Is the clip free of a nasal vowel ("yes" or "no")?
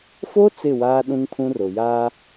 no